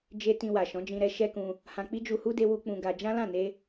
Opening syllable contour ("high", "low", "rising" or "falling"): high